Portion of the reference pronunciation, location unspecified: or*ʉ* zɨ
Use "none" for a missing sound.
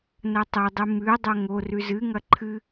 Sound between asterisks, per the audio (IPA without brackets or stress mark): ʉ